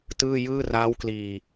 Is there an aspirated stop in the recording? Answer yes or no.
no